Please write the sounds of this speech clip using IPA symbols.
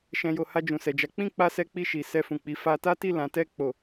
ʃɛ̃˨jo˨ ha˧d͡ʒũ˨sɛ˨d͡ʒa˨˦ k͡pĩ˦˨k͡pa˧ sɛ˦k͡pi˦˨ʃi˨ sɛ˧fũ˨k͡pi˨˦ fa˧ta˦ti˦˨ lã˨˦tɛ˦˨ k͡po˨

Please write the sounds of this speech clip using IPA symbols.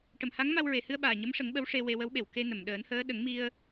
ʈə˨˩˨mha˧˥ŋma˧w ɹe˨˩˨hɨ˧ə̯ ɓaː˨˩ɲə˧˥mʂə˨˩˦ŋ ɓə˧˥wʂe˧ we˧wə˧˥wɓe˨˩˨w ke˧nə˨˩˨mɗəː˨˩˦nhəː˧˥ ɗə˨˩˦ŋmi˧ə̯

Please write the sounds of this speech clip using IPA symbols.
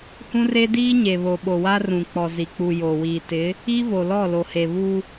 hũ˦re˦diː˦ ɲe˨βo˨ɓo˨ wa˦rũ˨ k͡pɔ˨zi˨k͡pu˨ jo˨wiː˨ tɪ˨˦ | i˦ vo˨lɔ˦˨lo˨he˨ βu˦

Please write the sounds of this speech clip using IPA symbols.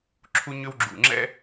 ǁʰu˦ɲʏ˦w ɡ͡ǁṵ˨ ŋ͡ǁɛ̰˦

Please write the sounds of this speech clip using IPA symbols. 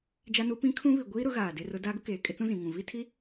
d͡ʒa˦nu˦ pĩ˦ kʰũ˦βi˨ ɡʷiː˦ɾʊ˨˦ ɣaː˨de˦rʊ˦ daː˦ɡʊ˦ keː˨kʼɪ˦t͡sũ˦ zĩ˨ŋũ˨ vi˦tʰi˦

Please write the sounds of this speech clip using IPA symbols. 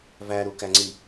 væɾukæŋ͡ǀi

